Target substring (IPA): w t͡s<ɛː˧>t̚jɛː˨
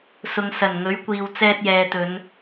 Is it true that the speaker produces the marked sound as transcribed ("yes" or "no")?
yes